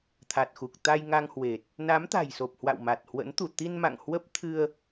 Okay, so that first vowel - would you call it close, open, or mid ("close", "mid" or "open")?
open